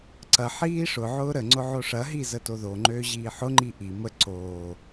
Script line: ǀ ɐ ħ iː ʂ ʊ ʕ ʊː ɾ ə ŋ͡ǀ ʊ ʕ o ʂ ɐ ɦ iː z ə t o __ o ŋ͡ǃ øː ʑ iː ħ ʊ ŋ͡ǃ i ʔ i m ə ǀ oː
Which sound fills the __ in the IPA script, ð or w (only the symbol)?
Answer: ð